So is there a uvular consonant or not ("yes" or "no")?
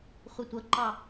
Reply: yes